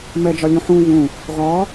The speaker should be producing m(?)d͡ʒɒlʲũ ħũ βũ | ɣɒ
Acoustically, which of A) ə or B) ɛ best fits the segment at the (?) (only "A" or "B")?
B